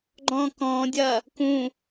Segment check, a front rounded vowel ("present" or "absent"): absent